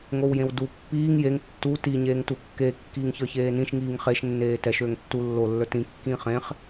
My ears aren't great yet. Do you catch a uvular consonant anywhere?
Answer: yes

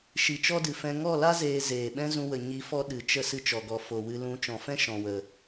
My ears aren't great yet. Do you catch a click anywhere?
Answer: no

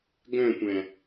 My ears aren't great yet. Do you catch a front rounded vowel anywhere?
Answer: yes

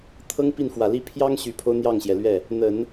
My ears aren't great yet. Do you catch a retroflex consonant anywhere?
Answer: no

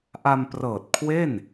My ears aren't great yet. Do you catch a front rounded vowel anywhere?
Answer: no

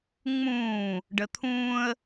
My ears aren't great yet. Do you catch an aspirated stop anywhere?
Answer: yes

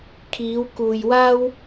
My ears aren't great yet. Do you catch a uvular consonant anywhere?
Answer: no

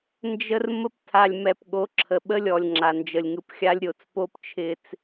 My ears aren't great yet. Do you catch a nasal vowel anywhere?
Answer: no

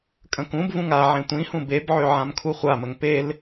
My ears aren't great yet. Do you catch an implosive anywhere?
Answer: no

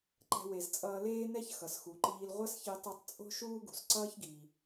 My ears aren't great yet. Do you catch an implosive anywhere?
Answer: no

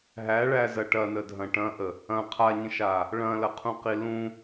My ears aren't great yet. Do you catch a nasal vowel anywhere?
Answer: yes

